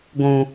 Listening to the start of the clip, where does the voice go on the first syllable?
low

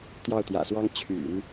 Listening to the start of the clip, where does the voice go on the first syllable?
falling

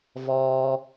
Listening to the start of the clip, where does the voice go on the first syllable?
low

